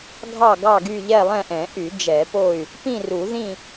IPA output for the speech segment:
ɡʱ ɑ˦˨ ɡ ɑ˦˨ ɡ y˦˨ ʎ ɛ˦˨ lˠ ɛ̃˦˨ ʔ ɛ̃˨˩˦ ʔ y˨˩˦ d͡ʒ ɛ˨˩˦ p o˦˨ y̯ | p ĩ˦˨ r u˨˩˦ ð ĩ˦˨

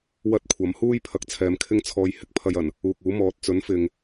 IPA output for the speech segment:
w ɐ˥ t̚ kʷʰ ɐ˨˥ m h uː˥ j pʰ ɐ˧ k̚ t͡sʰ ɛː˨ m kʰ ɪ˥ ŋ t͡sʰ ɔː˧ j h ɪ˨ k̚ pʰ ɐ˨ j ɐ˨˩ n | uː˨ k̚ uː˨˥ m ɔː˨˥ t̚ t͡s ɵ˨˥ n f ɪ˨ ŋ

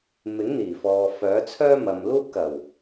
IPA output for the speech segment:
m ɪ˨˥ ŋ n̪ iː˨˩ f ɔː˨ f œː˨˥ t͡sʰ œː˥ m ɐ˨ m l uː˥ p̚ k ɐ˨˩ w

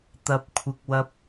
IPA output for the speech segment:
t̪ ɐ˨ p̚ kʷʰ ɪ˨ k̚ w ɐ˧ p̚

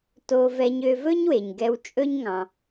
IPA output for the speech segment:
t o˧ v ɛ˧ ɲ ø˧ v ɵ˥ ɲ w e˩ ɲ ɡ ɛ˧ w t͡ʃʼ ɵ˥ ɲ ŋ ɑ̃˩

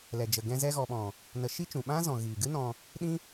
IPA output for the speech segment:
l ɛ˨ d͡ʒ ə˨ ɡ ɛ̃˧ z ɛ˧ ɣ ɔ˨ ɓ ɔ̃˨ | n ə˨˦ ʃ i˦ t͡ʃ ũ˨ ɓ ã˦ z ɔ̃˨ ɣ iː˨ ɡ ɨ˦ n ɔ̃˧ | ɗ ĩ˦

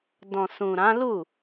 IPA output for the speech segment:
d ɔ̃˨ s ũ˨ ɾ ã˨˦ l u˦˨

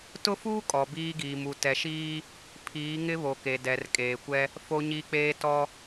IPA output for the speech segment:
t ʊ˦ f uː˦ kʼ ɔ˨ b iː˦ ɡ iː˨ m u˨ t ɛ˨ ʃ iː˦ | pʰ iː˨˦ ŋ ɪ˦ β o˨ k e˨ d ɛ˨ r kʼ eː˨ kʷ ɛ˦ | f o˦ ɲ i˦ k͡p eː˦ t ɔ˦

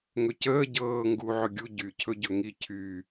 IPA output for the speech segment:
ŋ ɵ c əː ɟ ɤː ŋ ɡ uː ʕ ɵ ɡʲ u ɟ y cʰ ɵ ɟ ɵ ŋ i cʰ y

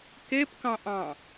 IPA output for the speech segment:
k e p k ɑ̃ ʔ ɑ̃

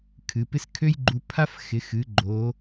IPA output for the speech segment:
kʰ ɨ˩˧ p ɪ˥ s kʰ ø˥ j ɡ͡ǃ u˧ pʰ a˥ f x ɪ˩˧ x ɨ˩˧ ɡ͡ǃ o˩˧

